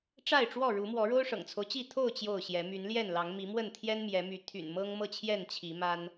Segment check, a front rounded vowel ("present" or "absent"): present